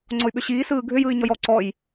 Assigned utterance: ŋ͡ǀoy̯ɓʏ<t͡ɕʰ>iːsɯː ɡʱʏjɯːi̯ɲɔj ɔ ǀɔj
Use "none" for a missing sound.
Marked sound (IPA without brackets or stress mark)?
ɕ